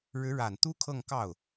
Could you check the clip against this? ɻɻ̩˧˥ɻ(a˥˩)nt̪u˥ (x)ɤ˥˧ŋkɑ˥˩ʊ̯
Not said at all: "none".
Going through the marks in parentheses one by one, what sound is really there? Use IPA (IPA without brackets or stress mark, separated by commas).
a˨˩, kʰ